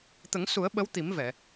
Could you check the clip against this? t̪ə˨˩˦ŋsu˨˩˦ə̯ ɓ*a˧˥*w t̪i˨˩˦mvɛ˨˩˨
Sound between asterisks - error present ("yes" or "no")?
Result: yes